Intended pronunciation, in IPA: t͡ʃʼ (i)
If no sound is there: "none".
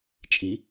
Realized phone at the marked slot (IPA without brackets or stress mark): i